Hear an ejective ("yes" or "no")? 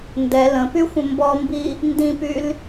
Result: no